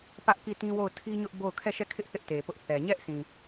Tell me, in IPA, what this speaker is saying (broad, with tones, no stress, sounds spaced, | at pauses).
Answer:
p ä˦ ʔ k i˦˨ t ĩ˦ w o˦˨ ʊ̯ tʰ i˦ ɲ ʊ˦ ʔ b o˦˨ ʊ̯ kʰ ɛ˦˨ ʃ ɛ˦˨ kʰ ɪ˦ ʔ θ ɪ˦ ʔ t e˨ p ʊ˦ ʔ θ ɛ˨ ɲ ɛ˦ ʔ s ĩ˨